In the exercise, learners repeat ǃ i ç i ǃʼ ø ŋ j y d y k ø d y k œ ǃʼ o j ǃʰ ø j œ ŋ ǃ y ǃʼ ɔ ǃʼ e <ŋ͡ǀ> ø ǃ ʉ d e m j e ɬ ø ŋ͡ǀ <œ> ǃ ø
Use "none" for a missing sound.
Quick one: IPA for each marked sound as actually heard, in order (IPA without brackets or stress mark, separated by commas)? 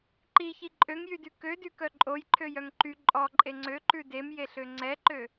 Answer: ŋ͡ǀ, ɛ